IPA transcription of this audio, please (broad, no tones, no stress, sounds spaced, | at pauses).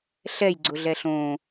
ɬ ɛ j ɡ͡ǀ ʊ ɮ ɛ ɬ õ